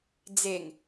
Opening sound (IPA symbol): d͡z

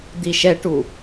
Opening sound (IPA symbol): d̪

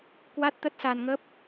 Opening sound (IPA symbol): k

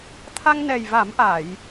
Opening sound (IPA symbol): t̪ʰ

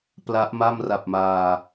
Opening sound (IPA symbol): p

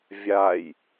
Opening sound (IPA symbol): vʲ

